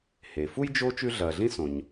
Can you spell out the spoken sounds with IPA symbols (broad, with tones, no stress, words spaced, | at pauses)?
he˩ fu˥jd͡ʒo˦ t͡ʃʉ˦ɮɐ˨ɮĩ˥ sõ˩ɲ